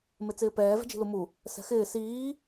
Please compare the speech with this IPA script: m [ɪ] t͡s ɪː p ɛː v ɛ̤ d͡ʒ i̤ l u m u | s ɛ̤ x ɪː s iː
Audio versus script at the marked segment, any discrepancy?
no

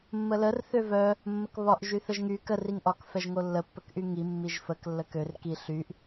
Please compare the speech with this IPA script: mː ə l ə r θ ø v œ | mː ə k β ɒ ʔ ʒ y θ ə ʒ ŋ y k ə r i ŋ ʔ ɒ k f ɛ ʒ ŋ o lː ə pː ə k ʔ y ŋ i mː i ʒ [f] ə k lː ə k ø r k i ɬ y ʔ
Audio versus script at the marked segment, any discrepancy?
no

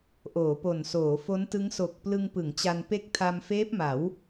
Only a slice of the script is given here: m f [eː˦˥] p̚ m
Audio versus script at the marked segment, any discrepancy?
no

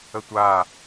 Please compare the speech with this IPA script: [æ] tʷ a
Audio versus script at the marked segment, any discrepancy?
yes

